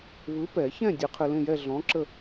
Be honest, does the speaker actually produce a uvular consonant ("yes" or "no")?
yes